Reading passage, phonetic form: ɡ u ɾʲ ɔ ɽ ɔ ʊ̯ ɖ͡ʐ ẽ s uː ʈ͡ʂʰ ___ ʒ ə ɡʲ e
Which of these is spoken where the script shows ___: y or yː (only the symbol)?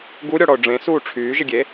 yː